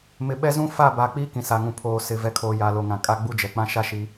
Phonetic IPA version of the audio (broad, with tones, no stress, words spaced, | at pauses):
mɪ˨ ɓɛ˦zũ˦ fa˦˨ba˨ k͡piː˦kĩ˨sa˨ŋũ˨ pʰoː˨ sɪ˨ vɛ˨kʰoː˨ ja˨lo˨ ŋã˨kʼa˦ ɡ͡bu˦d͡ʒɛ˨ k͡pã˦ʃa˦ʃi˨˦